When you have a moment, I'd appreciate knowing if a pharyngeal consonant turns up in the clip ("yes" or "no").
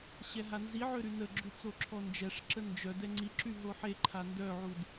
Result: yes